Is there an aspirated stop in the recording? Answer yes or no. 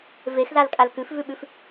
no